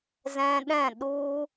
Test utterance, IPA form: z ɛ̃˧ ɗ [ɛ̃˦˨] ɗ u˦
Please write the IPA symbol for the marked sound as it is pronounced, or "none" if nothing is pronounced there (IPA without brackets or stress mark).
ɛ̃˦˨